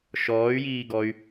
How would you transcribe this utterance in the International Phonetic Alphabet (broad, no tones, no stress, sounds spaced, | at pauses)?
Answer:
ʃ ɔː y̯ j iː ɡ ɔ y̯